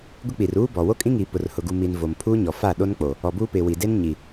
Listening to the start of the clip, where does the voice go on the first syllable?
high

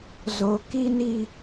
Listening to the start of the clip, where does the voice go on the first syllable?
high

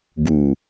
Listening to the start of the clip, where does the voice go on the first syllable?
low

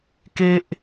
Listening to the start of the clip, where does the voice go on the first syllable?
high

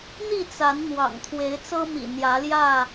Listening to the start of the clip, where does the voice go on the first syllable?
falling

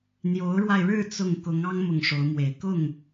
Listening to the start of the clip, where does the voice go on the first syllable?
rising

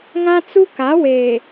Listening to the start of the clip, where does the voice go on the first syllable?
high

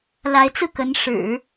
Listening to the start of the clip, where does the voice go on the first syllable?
rising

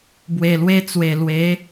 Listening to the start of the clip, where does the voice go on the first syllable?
low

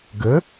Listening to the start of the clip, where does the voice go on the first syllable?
rising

